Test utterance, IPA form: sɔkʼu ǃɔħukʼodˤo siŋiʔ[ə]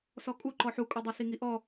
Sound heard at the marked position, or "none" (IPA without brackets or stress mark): ɔ